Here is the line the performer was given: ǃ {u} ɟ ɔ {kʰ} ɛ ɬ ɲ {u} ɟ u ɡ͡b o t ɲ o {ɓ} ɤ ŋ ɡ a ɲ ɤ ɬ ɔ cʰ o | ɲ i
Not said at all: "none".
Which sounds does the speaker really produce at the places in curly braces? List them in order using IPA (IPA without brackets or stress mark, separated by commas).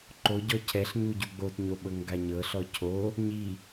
o, cʰ, u, ɓ